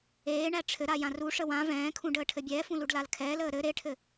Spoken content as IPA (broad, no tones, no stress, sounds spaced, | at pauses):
eː ɳ æ ʈ͡ʂʰ ɘ ɾ a j ã r u ʂ ə w ã v ɛ̃ː kʰ ũ ɖ əː ʈʰ ɘ bʲ ɛː f ũ l u ɖ l a l kʰ ɛː l əː ɾ ɘ ɾ e ʈʰ ɘ